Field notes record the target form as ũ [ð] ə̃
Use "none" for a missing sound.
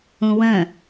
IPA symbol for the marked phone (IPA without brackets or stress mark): w